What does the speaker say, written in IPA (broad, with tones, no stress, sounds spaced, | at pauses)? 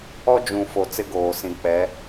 ɔ˦ d͡ʒ ũ˨ f o˨ t͡s ɪ˦ ɡ oː˨ s ĩ˨ k͡p ɛ˨˦